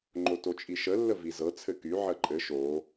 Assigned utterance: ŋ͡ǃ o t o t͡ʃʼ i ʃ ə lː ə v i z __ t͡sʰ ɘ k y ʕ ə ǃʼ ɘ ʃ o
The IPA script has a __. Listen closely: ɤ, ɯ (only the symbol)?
ɤ